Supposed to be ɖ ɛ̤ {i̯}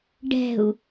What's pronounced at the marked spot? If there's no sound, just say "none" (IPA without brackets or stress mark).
u̯